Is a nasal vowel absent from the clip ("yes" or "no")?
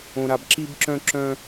no